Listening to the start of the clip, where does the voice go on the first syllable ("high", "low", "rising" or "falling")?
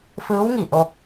rising